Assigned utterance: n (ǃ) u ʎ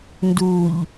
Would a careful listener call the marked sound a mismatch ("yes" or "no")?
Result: yes